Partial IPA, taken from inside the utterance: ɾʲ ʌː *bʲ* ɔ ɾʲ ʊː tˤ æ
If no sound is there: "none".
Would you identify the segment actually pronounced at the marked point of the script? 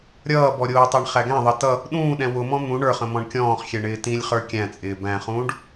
b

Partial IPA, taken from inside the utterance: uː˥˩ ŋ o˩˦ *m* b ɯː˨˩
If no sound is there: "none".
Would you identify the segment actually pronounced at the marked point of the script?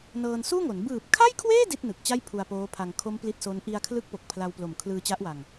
n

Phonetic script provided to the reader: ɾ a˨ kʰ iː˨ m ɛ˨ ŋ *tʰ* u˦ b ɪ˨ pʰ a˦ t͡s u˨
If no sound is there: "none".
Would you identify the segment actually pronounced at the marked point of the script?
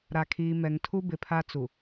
tʰ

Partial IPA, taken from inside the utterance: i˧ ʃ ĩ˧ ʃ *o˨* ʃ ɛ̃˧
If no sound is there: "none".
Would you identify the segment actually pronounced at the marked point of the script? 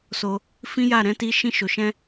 o˨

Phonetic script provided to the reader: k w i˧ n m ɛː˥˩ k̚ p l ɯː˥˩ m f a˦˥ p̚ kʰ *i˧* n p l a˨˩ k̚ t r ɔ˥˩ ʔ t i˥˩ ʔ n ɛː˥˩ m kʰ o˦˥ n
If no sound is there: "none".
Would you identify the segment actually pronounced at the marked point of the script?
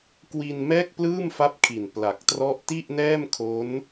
i˨˩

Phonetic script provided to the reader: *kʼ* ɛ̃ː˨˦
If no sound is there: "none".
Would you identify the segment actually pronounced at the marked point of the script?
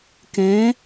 k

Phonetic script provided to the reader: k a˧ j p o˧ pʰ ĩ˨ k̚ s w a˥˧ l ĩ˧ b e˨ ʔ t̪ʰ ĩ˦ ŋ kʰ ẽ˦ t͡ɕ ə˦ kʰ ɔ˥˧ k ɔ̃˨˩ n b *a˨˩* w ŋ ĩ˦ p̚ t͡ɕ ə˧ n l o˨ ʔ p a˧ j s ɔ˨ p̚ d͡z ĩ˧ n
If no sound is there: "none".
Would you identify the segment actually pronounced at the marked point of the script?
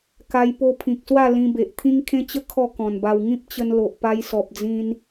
a˧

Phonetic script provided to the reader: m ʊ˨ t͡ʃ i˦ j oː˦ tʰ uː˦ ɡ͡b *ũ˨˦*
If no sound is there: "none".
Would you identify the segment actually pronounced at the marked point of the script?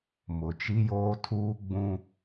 ũ˦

